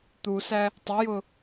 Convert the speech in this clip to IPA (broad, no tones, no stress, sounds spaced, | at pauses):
t̪ u s æ | tˤ ɪ j ʊ